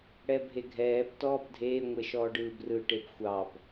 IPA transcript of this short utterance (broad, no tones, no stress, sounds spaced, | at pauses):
ɽ ɛ bʱ e ɡʱ ɛː b t ɔː b dʱ eː ŋʷ e ʃ ɔː ɖ ɯː b r ɯ ʈ e b xʷ ɑ b